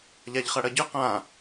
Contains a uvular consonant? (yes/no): yes